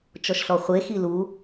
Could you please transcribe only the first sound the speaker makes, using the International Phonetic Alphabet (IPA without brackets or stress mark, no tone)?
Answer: t͡ʃ